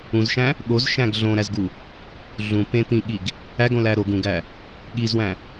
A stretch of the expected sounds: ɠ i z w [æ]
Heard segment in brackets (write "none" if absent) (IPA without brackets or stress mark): æ̃